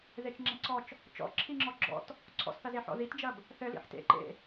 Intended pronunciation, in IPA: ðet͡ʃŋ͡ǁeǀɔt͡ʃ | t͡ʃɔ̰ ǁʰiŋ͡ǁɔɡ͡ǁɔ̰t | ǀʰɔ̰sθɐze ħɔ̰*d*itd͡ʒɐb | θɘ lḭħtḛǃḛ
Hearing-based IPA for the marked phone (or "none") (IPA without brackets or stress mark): ð